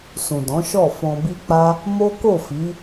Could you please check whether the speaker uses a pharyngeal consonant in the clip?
no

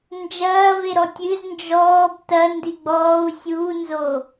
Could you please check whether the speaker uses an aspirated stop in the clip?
no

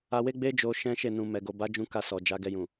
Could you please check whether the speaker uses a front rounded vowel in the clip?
no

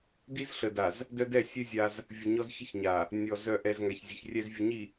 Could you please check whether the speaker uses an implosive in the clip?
no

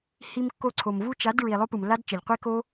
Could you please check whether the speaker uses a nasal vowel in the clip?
no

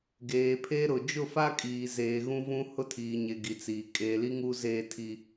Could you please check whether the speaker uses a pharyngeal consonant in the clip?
no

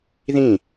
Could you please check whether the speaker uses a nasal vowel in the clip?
yes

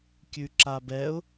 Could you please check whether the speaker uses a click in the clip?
yes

